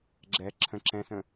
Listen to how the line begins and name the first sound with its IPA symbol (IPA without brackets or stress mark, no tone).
ɡ͡ǁ